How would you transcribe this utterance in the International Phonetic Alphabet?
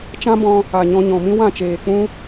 t͡ʃ ã˦ b ɔ̃˧ | a˨ ɲ ɔ̃˧ ɲ ɔ̃˨ m ĩ˦ w ã˦˨ t͡ʃ eː˨ k͡p ũ˦

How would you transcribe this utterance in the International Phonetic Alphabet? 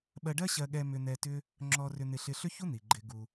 ɓ ɜ˧ ɖ ɜ˥ ɕ ɜ˧ ɠ ɛ˧ m ʏ˧ n̪ ɛ˧ t ʏ˥ | ŋ͡ǁ ɔ˧ r ʏ˧ n̪ ɪ˧ ɬ ɪ˧ ɬ ʏ˥ ç u˥ n̪ i˩ ɡ͡ǃ ɪ˧ ɡ u˧

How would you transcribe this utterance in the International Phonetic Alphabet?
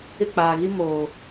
ɪ˦˨ k͡p aː˨ ɣ i˦ m oː˨

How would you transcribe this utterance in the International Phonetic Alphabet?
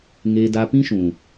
ŋ eː˧ d a˧ p ĩ˦ ʃ ũ˨

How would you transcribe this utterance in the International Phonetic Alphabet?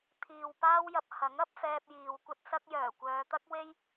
t̪ʰ iː˨ w p aː˥ w j ɐ˧ p̚ h ɐ˨˥ ŋ ɐ˥ p̚ f ɛː˧ p̚ j iː˨ w kʷ ɐ˥ t̚ s ɐ˥ k̚ j œː˨˩ kʷ œː˨˧ t̪ ɐ˥ k̚ w e˥ j

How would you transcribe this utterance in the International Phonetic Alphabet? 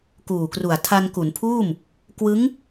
k uː˨˩ k r u˨˩ a̯ tʰ a˧ n k u˩˦ n pʰ uː˥˩ m | k w ɯ˦˥ ŋ

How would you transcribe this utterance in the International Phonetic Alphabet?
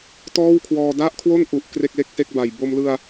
t ɔː˥˩ w kʰ w ɔː˧ d a˥˩ ʔ kʰ w o˥˩ n ʔ u˨˩ ʔ k r e˥˩ k̚ l e˥˩ k̚ s e˥˩ k̚ b a˨˩ j b o˧ m l ɯ˧ a̯

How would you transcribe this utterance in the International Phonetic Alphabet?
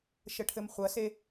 ʃ ə ʈʰ ɘ m χʷ ɐ s e

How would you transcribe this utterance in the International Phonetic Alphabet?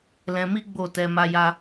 l ɛ̃˧ m i˦ ɡ͡b o˦˨ t ɛ˧ m a˦ j a˦

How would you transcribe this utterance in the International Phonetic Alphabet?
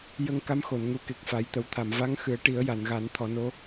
j ə˧ ŋ k a˧˥ m x o˨˩˨ n ŋ u˧˥ k e˨˩ k̚ f a˨˩˦ j t̪ ə˨˩ w t̪ʰ a˨˩˨ m v a˧˥ ŋ x ɨ˨˩˦ ə̯ ʈ i˨˩˦ ə̯ j a˨˩˨ n ɣ a˨˩˦ n t̪ʰ ɔ˨˩˦ n o˧˥

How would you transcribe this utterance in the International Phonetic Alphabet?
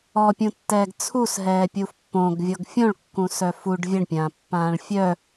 ɔ pʲ ũ tː ɛː ɡ t͡sʰ u s ɦ ɛː pʲ u f pː õ ɡ vʲ ɔ ɡ fʲ õ ɭ kː ũ s œ f u ɖ vʲ ə ɳ pʲ ãː pː ãː ɭ fʲ œ

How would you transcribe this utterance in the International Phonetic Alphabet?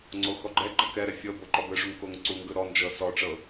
ŋ͡ǀ o x ɔ ɡ͡ǃ ɛ ɡ͡ǃ ɤ k ɛ ɾ ɛ fʲ ɤ b o ǃ ɔ b ɯ ʂ u ŋ k o ŋ ǀ u ŋ ɡ ɯ ɾ ɔ n d͡ʒ ɤ s ɔ ʈ͡ʂ ɤ

